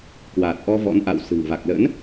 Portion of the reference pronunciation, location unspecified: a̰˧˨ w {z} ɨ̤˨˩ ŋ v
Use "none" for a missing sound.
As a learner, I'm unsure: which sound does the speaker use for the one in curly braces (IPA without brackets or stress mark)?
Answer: s